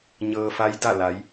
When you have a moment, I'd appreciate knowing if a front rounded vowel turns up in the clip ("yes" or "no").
no